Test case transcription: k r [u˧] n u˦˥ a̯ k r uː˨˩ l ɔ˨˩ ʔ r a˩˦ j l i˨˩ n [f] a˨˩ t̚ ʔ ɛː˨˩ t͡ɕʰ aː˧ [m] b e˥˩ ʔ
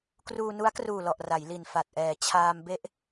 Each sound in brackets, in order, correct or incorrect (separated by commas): incorrect, correct, correct